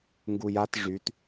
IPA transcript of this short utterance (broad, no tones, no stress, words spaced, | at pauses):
ŋɡujat ʐyt